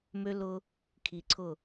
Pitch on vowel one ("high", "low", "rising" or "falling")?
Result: high